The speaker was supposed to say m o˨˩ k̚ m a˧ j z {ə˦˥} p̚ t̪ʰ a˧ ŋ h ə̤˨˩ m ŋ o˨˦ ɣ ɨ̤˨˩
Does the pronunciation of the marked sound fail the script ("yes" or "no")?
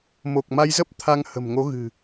no